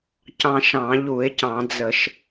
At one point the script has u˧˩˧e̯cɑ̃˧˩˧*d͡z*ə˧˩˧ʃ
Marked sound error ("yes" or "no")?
no